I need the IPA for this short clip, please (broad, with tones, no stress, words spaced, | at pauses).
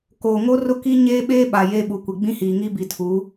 koː˨ ŋo˦rʊ˦ki˦ ɲeː˦ɓeː˦ɓa˨ jeː˦ɓu˨kʷi˨ ɡ͡bĩ˦hiː˨ŋi˦ bi˨tʰu˨˦